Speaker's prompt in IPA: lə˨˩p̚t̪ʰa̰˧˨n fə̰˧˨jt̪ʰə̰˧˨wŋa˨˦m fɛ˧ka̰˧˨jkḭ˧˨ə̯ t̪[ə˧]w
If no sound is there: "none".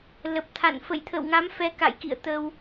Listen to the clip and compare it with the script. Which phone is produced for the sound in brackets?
ə˧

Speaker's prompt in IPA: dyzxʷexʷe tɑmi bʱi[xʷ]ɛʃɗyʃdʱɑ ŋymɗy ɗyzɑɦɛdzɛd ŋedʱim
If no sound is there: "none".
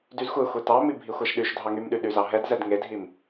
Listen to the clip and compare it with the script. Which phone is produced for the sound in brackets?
xʷ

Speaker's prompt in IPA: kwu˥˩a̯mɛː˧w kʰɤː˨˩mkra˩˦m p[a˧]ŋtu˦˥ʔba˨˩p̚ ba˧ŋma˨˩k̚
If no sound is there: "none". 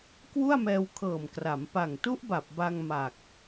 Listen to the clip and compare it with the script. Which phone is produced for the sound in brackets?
a˨˩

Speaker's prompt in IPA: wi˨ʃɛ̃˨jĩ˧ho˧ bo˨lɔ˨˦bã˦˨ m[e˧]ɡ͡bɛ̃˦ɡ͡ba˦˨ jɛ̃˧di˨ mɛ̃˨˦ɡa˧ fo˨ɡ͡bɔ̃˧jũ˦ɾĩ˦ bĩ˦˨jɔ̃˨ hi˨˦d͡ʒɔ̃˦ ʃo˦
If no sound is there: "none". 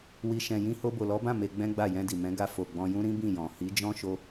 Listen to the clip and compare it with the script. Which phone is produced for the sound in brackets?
e˧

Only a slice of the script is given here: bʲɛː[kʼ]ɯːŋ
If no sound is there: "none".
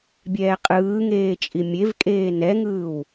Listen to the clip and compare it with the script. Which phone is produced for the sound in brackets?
qʼ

